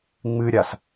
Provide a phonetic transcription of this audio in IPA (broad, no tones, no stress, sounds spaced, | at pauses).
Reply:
ŋ͡m ɨ ɾʲ a s